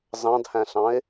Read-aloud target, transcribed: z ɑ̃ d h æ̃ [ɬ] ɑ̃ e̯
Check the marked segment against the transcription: correct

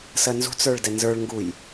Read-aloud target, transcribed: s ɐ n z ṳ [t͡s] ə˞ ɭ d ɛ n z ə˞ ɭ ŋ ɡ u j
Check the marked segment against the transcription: correct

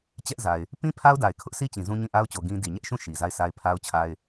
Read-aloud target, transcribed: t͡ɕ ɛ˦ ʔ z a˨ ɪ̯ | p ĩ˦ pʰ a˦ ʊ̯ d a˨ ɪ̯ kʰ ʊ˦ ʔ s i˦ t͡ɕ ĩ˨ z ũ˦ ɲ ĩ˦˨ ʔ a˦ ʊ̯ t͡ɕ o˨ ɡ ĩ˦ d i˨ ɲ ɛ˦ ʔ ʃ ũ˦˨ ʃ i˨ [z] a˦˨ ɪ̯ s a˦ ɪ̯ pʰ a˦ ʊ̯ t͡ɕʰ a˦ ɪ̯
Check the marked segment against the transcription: correct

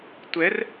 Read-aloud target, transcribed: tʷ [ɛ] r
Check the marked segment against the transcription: correct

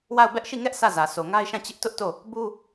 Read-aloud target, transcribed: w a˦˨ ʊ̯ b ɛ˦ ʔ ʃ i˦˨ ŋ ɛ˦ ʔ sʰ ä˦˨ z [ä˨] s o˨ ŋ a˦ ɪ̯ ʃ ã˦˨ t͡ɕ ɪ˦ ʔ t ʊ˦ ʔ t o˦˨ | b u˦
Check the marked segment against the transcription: correct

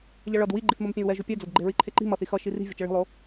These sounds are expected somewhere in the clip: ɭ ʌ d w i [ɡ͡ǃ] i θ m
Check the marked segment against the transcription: correct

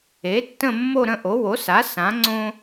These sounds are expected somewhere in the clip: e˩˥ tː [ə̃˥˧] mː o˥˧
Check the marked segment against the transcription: correct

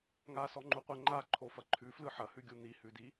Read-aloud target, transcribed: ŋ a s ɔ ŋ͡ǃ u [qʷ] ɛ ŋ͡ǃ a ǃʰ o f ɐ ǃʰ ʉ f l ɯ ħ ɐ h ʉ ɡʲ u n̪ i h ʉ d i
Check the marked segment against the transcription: correct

